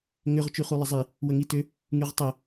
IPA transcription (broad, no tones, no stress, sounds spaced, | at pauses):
ŋ ʏ ʁ t͡ʃ y χ u lˠ ə zˤ i | w ə ŋ i t ʏ | ŋ y ʁ tˤ ʏ